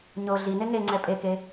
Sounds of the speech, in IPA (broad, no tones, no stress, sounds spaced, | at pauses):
ɲ o ɮ i n e ŋ e ŋ͡ǀ ɛ pʼ e k e